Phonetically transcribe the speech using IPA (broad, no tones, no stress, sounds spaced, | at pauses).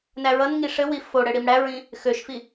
n æ ɹ ʌ n ŋ i ʂ ɘ w i f o ɽ ɘ ɽ i m ɽ æ ɹ ĩ | x ø ʃ f i